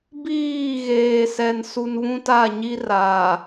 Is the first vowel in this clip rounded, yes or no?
no